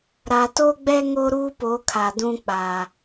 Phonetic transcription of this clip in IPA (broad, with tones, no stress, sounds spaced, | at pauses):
ɾ a˨ t o˦ ɡ͡b ɛ˦ ŋ o˦ ɾ uː˦ p o˨˦ kʰ a˨ d ũ˦ k͡p a˨